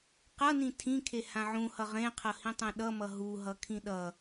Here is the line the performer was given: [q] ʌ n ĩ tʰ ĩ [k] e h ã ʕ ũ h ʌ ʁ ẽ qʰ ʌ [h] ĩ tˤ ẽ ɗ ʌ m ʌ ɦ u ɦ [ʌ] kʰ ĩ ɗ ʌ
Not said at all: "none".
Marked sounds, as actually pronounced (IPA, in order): q, kʰ, h, ʌ

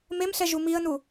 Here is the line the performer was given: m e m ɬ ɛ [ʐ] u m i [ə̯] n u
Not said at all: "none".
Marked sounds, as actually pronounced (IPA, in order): ʒ, ə̯

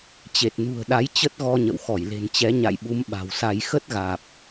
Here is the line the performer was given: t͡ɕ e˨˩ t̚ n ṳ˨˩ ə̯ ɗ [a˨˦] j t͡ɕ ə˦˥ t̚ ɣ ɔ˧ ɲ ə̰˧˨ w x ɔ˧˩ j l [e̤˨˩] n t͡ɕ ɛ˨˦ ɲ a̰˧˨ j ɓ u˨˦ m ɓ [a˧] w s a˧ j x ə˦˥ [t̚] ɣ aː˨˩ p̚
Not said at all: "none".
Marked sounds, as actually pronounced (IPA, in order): a˨˦, e̤˨˩, a̤˨˩, t̚

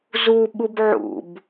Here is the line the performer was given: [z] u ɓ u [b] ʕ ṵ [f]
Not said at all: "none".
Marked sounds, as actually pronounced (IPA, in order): z, b, b

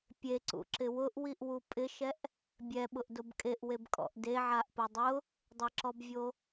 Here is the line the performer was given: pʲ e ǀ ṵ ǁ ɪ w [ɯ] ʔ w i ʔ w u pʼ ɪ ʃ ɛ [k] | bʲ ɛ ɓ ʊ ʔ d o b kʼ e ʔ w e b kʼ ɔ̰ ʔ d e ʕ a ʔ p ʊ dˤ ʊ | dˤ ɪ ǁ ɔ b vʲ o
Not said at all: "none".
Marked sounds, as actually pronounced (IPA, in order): ʊ, ʔ

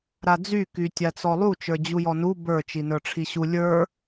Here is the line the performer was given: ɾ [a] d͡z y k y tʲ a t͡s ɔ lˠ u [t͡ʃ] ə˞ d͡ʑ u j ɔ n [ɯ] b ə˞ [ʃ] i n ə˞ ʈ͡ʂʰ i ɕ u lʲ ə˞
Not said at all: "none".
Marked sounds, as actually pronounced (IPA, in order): a, t͡ʃ, u, t͡ʃ

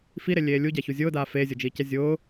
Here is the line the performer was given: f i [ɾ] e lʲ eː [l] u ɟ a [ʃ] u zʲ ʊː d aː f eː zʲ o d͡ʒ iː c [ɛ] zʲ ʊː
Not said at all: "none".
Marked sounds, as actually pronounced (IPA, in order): ɾ, lʲ, ç, ɛ

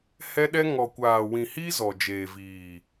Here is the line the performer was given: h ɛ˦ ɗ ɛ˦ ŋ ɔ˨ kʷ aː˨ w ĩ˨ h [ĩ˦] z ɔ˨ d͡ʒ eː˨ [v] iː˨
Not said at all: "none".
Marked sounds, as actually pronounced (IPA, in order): i˦, v

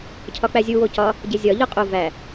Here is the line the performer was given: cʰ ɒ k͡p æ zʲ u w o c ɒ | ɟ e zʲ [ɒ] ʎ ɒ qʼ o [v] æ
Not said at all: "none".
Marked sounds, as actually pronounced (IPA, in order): ɒ, v

